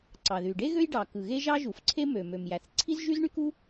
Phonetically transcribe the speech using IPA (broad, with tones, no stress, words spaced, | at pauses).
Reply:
ǀɑ˩ðy˩ ɖe˥ ɣø˥jɖɑ˩ kɯ˩ɣe˥ʒɑ˥ ʒu˩fǀʰe˥ mø˩ mø˩mjæ˩θǀʰi˥z ʒy˥zɳy˥ku˥